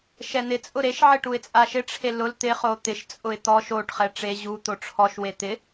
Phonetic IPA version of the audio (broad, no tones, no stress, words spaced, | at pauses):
ʃɛn̪ɪ t͡sʼʊɾeʃ ʕɪʈuɪ̯t͡sʼaʃɪ ʈ͡ʂʰelʊl t̪ɪ χot̪ɪʃ t͡sʼʊɪ̯t̪ɔʃ oʈ χɛʈ͡ʂe ʑu t̪oʈ͡ʂʰɔʃ wet̪ɪ